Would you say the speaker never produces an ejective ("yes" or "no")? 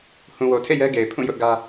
yes